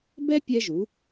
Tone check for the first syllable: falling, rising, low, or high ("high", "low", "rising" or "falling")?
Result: high